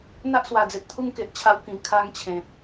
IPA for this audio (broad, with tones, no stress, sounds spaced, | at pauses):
n̪ a˦ ʔ s w a˨˩ d͡z e˨ t̚ t̪ʰ u˦ ŋ k e˨ ʔ t͡ɕʰ a˧ w k ĩ˨˩ kʰ a˧ ŋ t͡ɕʰ ẽ˨ t̚